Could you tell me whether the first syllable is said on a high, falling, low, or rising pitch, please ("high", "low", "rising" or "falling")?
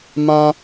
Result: high